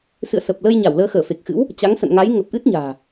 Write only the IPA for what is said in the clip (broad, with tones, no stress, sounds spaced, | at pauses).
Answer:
s ɨ̰˧˨ ə̯ s ə˨˩ p̚ l ə˧ j ɲ a˧˩ w l əː˧ x əː˧˩ f e˨˩ k̚ x ɨ̰˧˥ w | t͡ɕ a˨˦ ŋ s ə̰˧˨ n ŋ a˨˦ j ŋ ə˨˩ p̚ ʔ ɨ˦˥ t̚ ɲ a̤ː˨˩